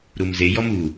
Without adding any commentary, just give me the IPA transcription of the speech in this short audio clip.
ɾ u m z e j ɔ m u

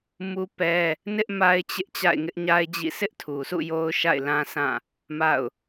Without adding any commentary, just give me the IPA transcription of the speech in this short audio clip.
m u˦ p ɛ˦ | n ɪ˦ ʔ m a˦ ɪ̯ t͡ɕ ɪ˦ ʔ t͡ɕ a̰˦˨ ɪ̯ ŋ ɪ˦ ʔ ɲ a˦ ɪ̯ d͡ʑ ḭ˦˨ s ɪ˦ ʔ tʰ u˨ s ṵ˦˨ j o˦ ʊ̯ ʃ a̰˦˨ ɪ̯ l ã˦ s ã˦˨ | m a̰˦˨ ʊ̯

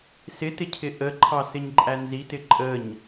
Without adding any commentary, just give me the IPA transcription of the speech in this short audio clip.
s ɪ t ɪ cʰ ɪ ʔ ə ǃʰ ɑ s ɪ ɲ ǃʼ æ n z i t ɪ ǃʼ ə ɲ

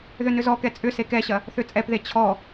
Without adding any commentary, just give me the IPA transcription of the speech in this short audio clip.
ð ʏ n ʏ z ɔ k ɛ t͡sʼ ʏ s e k ɛ ɕ ɐ | θ ʏ t͡sʼ ɛ p ð e t͡ɕʰ ɔ

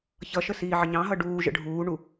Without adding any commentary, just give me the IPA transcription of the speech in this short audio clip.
ç ʌ ʃ ə s iː ʕ ə ɲ ɑ̃ ɦ ʌ ɖ uː ʒ ə̰ ɖʱ uː ɳ u

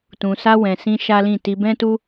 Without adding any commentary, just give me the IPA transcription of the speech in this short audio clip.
t ũ˨ s a˧ w ɛ̃˨ s ĩ˧ ʃ a˦ l ĩ˦˨ t i˧ b ɛ̃˦ t u˦

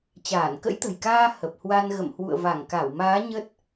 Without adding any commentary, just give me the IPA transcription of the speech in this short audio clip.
t͡ɕ aː˧˩ n k ə̰˧˥ j t̪ ə̤˨˩ j k aː˧ h ə˨˩ p̚ h w a˧ n ɣ ə̰˧˨ m h w ṵ˧˨ ə̯ v a˧˩ ŋ k a˧˩ w m aː˨˦ ɲ ə˦˥ t̚

